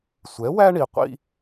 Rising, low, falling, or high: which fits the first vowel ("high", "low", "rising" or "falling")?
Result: rising